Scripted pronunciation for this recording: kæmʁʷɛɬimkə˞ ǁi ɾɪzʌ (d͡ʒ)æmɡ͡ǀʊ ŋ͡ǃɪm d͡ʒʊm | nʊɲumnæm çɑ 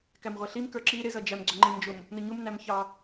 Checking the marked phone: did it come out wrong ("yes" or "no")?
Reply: no